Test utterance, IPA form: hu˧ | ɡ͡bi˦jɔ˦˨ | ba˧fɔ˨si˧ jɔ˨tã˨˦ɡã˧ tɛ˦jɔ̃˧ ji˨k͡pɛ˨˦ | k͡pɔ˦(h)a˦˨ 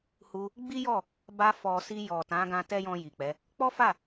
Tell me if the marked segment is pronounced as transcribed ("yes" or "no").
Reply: no